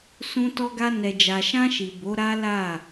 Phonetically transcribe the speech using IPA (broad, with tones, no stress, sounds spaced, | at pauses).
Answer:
s ũ˧ t ɔ˧ ɡ a˧ n ɛ˨ d͡ʒ a˨ ʃ ã˧ ʃ i˨ b o˨˦ ɾ a˦ l a˦˨